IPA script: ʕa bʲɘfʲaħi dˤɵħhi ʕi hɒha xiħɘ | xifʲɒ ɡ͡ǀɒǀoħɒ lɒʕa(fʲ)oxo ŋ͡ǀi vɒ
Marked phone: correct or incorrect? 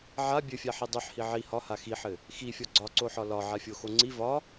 correct